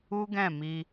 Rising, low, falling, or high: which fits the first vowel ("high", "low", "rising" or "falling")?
high